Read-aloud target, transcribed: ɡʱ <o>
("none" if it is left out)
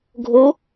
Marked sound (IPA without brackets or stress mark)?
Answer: o